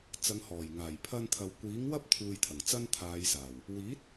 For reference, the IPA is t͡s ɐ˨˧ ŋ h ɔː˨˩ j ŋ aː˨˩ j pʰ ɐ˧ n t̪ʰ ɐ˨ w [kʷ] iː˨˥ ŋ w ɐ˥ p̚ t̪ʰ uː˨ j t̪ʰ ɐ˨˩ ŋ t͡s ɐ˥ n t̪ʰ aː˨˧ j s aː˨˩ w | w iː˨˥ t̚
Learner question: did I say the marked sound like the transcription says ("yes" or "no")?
yes